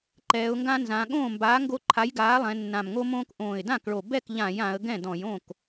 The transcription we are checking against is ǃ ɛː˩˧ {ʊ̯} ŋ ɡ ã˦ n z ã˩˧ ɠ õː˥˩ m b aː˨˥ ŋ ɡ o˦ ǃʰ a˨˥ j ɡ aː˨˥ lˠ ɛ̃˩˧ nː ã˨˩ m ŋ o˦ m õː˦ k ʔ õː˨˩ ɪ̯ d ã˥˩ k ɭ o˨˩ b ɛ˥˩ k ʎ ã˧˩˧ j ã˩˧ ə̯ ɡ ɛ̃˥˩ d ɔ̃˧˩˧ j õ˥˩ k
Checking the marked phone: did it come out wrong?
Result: no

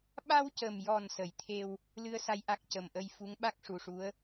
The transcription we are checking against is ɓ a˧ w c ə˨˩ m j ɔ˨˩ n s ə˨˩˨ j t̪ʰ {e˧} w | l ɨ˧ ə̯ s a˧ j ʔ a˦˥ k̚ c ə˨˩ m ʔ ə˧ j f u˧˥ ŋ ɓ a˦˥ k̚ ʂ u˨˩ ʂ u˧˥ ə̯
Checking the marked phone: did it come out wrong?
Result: no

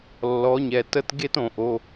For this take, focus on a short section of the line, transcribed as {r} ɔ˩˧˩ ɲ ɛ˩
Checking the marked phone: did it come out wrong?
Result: yes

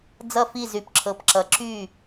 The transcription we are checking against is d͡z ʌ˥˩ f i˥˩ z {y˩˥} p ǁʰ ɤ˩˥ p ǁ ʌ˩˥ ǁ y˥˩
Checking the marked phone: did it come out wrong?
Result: no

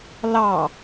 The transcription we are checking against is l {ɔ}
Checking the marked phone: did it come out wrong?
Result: yes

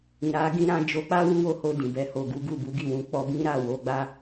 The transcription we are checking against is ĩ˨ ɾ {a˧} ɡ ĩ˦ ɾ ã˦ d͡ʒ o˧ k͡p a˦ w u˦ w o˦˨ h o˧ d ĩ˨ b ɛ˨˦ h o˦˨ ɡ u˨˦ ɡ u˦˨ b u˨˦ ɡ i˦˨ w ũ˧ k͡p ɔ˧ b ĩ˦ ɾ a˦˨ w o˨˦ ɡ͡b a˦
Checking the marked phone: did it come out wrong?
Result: yes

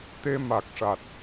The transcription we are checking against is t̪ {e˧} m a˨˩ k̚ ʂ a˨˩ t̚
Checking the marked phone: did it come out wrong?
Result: no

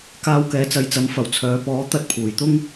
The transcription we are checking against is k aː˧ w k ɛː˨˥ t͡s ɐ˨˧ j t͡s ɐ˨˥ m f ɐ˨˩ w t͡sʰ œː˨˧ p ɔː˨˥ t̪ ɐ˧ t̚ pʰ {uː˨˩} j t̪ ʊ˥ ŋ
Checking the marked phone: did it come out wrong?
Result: no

